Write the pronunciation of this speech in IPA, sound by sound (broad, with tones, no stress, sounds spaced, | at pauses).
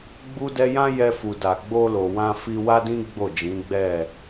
ɡ͡b u˦ d ɛ˦ j ã˦ j ɛ˧ f u˨ d a˨ ɡ͡b o˧ l o˨ w ã˧ f i˧ w a˦ d ĩ˦ ɡ͡b o˦˨ d͡ʒ ĩ˨˦ ɡ͡b ɛ˦˨